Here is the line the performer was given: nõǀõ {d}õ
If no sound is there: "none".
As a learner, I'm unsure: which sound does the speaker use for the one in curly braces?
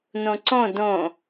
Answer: d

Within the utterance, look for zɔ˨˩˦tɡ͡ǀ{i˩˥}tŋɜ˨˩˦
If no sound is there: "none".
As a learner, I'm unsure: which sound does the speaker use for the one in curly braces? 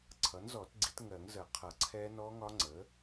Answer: i˩˥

